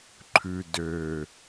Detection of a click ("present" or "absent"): present